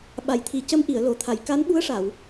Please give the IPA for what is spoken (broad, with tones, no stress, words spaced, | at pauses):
ɓa˨˩˨jt̪ʰi˨˩˨ cə˧˥mʔi˨˩˨ə̯lo˨˩˨t̪ʰa˨˩˨j ka˧˥nɓu˧˥ə̯ʂa˨˩˨w